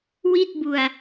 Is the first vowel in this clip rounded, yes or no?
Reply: no